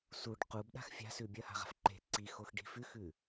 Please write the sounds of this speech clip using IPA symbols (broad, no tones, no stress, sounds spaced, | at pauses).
s u ɖ q u b ɗ a̤ x fʲ a̤ s ʉː bʲ ɐ h a̤ ʁ a̤ f ǃ e̤ ǀ i x o x ɖ i̤ f ʉ x ʉ